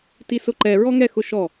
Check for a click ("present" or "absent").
present